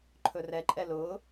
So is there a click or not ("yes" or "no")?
yes